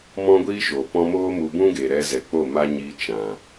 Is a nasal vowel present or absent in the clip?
present